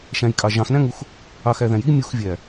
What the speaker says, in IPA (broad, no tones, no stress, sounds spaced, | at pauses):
ʃ æ̃ j kʼ ɑ ʒ ɑ̃ x n æ̃ ŋ u x | ɑ x æ ð æ̃ j i mʲ u x vʲ æ